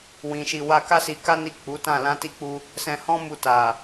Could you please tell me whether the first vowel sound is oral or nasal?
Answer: nasal